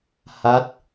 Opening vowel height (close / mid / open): open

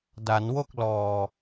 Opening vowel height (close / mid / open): open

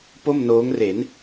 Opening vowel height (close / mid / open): mid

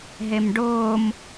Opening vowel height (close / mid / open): mid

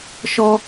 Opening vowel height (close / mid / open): mid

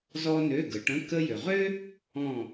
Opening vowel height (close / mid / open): mid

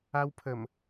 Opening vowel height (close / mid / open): open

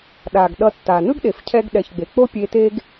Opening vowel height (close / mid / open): open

